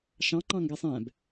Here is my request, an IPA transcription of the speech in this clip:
ʃ ɑ̃ ŋ͡ǃ ɑ̃ ŋ ɡ ɛ sˤ ɛ̃ b

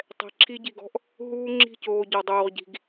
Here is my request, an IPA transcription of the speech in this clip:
tˤ ɛ̤˨ ǁʰ i˧ ɟ i˨ ɡ ɔ̤˦ ʔ | ɦ uː˦ ŋ͡ǁ i̤˦˨ c oː˨ ɟ ɔ˨ dˤ oː˨ ʁ ɟ i̤˨ ɡ

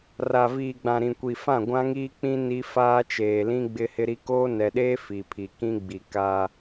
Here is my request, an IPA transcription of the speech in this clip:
r a˨ v iː˨ ɡ͡b ã˨ ɾ ĩ˨ kʷ i˨ f ã˦˨ ɡʷ ã˦ ŋ iː˦ k͡p ĩ˦ n i˦ f aː˦ t͡ʃ eː˨ l ĩ˦ ɡ͡b ɪ˦ h ɪ˦ ɾ i˦ k oː˦ n ɛ˨ ɗ eː˦ f i˨ pʰ i˨ k ĩ˦ ɡ͡b i˨ k a˦

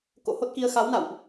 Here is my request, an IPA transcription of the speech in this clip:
k o̰˧˥ h o˦˥ t̚ k i˧ ə̯ x a˨˦ w n a̰˧˨ w ʔ

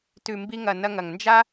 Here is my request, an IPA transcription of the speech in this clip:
t ʉ˨ m b i˧ ŋ ɐ˨ n ɐ˧ ŋ ɐ˨ ŋ n d͡ʒ a˦

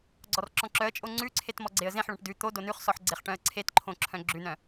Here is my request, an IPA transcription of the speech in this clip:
ɡ͡ǀ ɔ r ǁ ɔ̃ ǁ œ ə̯ t͡ʃʼ o ŋ͡ǀ ʉ ǀʰ e t m ɔ ɡ͡ǀ e ə̯ z ẽ ħ ɭ ɔ̃ ʈ d ʉ t̪ o d o n ʉ χ s ɔ ħ ɡ͡ǀ e χ ʈ œ̃ ə̯ ǀʰ e t ǃʰ õ ǁʰ œ̃ ɡ͡ǁ ʉ n œ̃

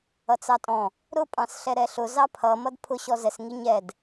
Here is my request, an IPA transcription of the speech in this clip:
ʌ t͡s ɑ tʼ ɔ̃ | ɾ ʊ pʼ ɑ̃ s ɬ ɛ ɾ ɛ ɬ ʊ z ɑ pʰ ʌ m ʌ d pʰ ʊ ɕ ɔ z ɛ s ŋ i ɲ ɛ d

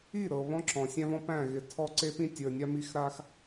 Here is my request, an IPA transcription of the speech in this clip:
i˦˨ ɾ ɤ˨ β ɔ̃˦ ǁ ɔ̃˨ sʲ æ̃˦ v ɔ̃˦ p æ̃˦˨ ɣ ɪ˨ tʰ ɔ˦ ǀ e˦ p ĩ˦ tʲ ə˞˨ nʲ a˦ m i˦ x ɾ a˦ x

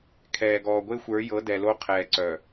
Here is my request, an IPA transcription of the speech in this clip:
kʰ ɛː˨ ɡ ɔː˨ ɡʷ e˦ xʷ ə˞˨˦ j ɤ˨˦ d ɛ˨ l o˦ qʰ ɛː˨ ǀ œ˨

